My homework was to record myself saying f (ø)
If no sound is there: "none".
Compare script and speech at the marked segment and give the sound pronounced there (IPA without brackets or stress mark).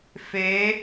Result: e